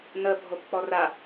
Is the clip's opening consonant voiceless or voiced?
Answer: voiced